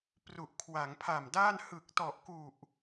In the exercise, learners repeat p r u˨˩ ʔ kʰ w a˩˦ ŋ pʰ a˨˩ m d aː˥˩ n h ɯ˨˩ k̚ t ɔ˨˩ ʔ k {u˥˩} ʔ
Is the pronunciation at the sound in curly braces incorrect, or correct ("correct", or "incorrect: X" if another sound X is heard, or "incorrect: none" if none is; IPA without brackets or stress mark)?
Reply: incorrect: u˨˩